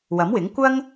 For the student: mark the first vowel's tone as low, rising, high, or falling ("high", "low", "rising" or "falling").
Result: rising